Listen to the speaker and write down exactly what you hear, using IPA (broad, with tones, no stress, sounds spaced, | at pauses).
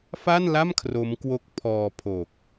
f a˥˩ n l a˥˩ m kʰ r o˦˥ m k w o˦˥ k̚ pʰ ɔː˧ pʰ o˨˩ k̚